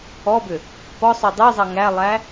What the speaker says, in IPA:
ɔbʏ | pɔsˤy dˤezˤʌ ŋælˠæ

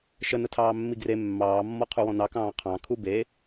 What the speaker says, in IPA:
ʃə nətʰɑːmːiɡre mːɑːmːɔ qʰuwɔ̃nɑkɑ̃ː qʰɑ̃ kʰube

